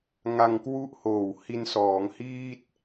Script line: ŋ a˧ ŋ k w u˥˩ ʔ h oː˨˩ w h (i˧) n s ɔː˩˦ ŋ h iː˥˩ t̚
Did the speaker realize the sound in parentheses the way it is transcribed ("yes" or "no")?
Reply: yes